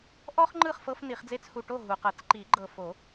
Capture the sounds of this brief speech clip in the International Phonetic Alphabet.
ʔ ɔ˥ χ ŋ͡ǃ ɯ˥˨ χ f ɤ˥ f n i˨˩˦ χ d͡z e˥ t͡s h u˨ ʈ o˥˨ ɦ u˨ q ɤ˨˩˦ t͡s ǃ i˨˩˦ ɡ͡ǃ ɤ˨ f o˨˩˦

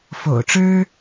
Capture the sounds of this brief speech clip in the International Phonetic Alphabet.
f o̰˨˩ ʊ̯ ʈ͡ʂ ɻ̩˦

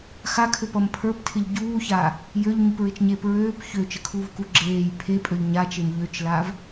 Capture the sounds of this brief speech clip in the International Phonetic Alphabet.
x a kʰ ø p ʌ m pʰ ə˞ p tʰ ɪ ʎ ɟ uː ç a | j ø ʎ ɲ u p ɹ ɪ t͡ʃ ɲ eː p ɹ øː p ç ø t͡ʃ ə kʰ uː v k u ɡ͡ǁ eː j pʰ e pʼ ø ʎ ɲ a t͡ʃ e m ʎ ø t͡ʃ l a v

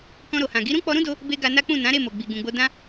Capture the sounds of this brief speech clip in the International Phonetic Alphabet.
k ɔ̃˧ ɾ o˨ h ã˨ ɡ i˨˦ ɾ ũ˦ k͡p ɔ˧ ɾ ũ˦ d o˧ | b e˧ ɡ a˧ n a˦ k͡p ũ˦˨ n ã˨˦ ɾ e˦˨ m o˨ ɡ͡b i˨ ɡ ũ˨ ɡ͡b o˧ d ã˦

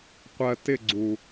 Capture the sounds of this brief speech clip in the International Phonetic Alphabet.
qʷ ɜ t ɪ ɡ͡ǀ u

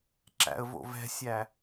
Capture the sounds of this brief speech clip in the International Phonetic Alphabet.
ǁ æ̰ ə̯ v o̰ v ɛ̤ sʲ æ

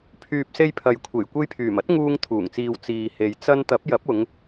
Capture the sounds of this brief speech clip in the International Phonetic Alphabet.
pʰ yː˨ p̚ s e˧ j pʰ ɐ˨ j kʷʰ e˨˩ j kʷ e˧ j pʰ yː˨˩ m ɐ˥ t̚ ŋ uː˧ ŋ t̪ʰ uː˨˩ ŋ t͡s iː˨ w t͡s iː˨ h e˧ j t͡s ɐ˥ n t̪ ɐ˨˥ p̚ j ɐ˨˥ p̚ ʊ˨˧ ŋ

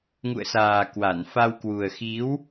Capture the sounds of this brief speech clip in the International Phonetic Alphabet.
ŋ ṵ˧˨ ə̯ s aː˨˩ k w a˧˩ n f a˧ w k w u˨˩ ə̯ x i˨˦ w

